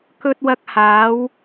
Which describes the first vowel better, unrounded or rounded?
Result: rounded